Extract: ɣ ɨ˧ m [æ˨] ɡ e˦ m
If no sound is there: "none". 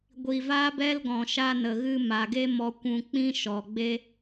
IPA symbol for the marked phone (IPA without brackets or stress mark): a˨